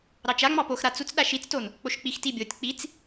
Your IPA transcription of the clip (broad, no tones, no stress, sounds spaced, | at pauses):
ɾ ɑ t͡ʃ a ŋ͡m ɑ p o x ɾ a t͡s u t͡s ɗ a ʃ i t͡s t o n | k͡p o ʃ k͡p i x t i bʲ o tʲ k͡p i t͡s